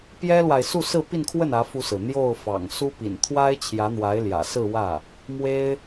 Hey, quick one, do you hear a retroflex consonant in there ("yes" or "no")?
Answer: no